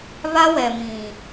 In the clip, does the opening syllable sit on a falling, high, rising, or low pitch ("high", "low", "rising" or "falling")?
high